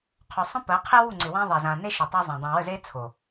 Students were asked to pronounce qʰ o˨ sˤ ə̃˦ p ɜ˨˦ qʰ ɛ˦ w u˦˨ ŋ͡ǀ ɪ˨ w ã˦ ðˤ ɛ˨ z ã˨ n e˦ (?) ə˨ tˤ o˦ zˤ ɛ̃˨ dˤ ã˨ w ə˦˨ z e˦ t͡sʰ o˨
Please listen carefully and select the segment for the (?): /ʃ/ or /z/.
ʃ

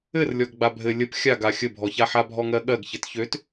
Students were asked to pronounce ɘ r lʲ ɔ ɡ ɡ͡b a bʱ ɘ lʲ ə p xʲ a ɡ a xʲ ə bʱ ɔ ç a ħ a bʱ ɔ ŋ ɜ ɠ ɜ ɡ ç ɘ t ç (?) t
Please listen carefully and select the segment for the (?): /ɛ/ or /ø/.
ø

